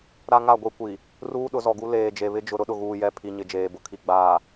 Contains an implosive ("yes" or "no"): yes